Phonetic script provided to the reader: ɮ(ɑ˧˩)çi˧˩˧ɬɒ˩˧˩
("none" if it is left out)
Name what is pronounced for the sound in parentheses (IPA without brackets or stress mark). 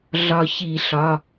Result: ɒ˧˩